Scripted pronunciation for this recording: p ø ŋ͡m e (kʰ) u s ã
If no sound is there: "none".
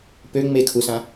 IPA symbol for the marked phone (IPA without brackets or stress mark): kʰ